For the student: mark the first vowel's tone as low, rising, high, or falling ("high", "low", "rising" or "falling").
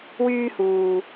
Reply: high